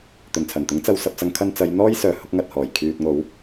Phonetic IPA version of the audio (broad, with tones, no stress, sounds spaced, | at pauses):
t̪ ɵ˨˩ n t͡sʰ ɐ˨˩ n t̪ ʊ˨˥ ŋ t͡s ɐ˧ w s ɐ˧ p̚ t͡s ɐ˧ ŋ kʰ ɐ˧ n t͡s ɐ˨˧ j n̪ ɔː˥ j s œː˨˧ h ʊ˨˥ k̚ ŋ ɐ˨ t̚ h ɔː˨˩ j kʰ yː˨ t̚ ŋ o˨˧ w